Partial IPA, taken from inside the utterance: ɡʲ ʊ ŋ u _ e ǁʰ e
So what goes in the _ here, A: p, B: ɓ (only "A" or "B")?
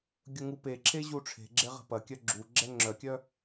A